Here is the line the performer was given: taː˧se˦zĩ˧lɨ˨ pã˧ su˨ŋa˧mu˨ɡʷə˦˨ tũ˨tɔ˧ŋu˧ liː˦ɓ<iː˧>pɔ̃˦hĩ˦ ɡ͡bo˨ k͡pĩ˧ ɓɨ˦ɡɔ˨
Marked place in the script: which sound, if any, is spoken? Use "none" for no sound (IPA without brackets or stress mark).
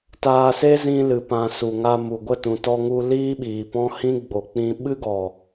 iː˨